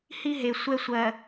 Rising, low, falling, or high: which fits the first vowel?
high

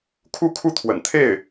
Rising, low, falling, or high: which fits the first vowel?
falling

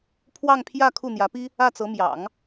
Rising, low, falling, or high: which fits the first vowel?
falling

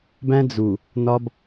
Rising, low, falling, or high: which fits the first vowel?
high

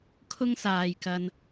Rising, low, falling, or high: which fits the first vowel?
high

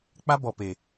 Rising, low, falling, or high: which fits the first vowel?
high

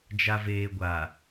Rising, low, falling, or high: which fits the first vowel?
low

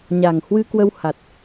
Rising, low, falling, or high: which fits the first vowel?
low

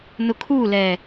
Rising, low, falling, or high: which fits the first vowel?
low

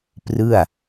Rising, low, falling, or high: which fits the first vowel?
falling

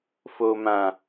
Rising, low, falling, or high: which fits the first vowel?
low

